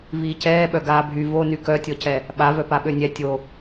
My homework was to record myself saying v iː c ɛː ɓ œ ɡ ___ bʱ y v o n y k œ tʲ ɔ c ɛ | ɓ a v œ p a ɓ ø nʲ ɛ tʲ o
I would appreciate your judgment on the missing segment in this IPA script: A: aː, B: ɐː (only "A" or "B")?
A